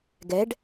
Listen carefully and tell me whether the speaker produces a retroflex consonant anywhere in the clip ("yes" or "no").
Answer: yes